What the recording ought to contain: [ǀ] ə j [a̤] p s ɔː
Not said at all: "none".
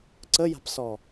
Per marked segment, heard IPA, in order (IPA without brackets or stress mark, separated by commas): ǀ, a̤